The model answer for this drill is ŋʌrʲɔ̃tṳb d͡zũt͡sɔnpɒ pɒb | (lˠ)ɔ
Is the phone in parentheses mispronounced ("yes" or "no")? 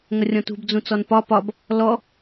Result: yes